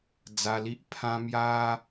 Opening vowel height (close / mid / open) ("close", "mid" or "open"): open